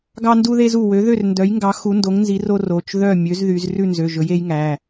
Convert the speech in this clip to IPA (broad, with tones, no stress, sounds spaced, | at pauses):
ɡ ɑ˥ n d u˥ ð e˥ z u˥˨ w ø˨˥ ð ø˥˨ r n d œ˨˥ j ŋ ɡ ɑ˨˥ x u˨˥ n d o˨˥ ŋ n z i˨˥ r o˥ r o˩˧˩ t͡ʃ ð œ˥˨ mʲ ø˨˥ z ð y˨˥ z r ʉ˥˨ n z ø˩˧˩ ʒ ɵ˨˥ j e˨˥ j ŋ æ˩˧˩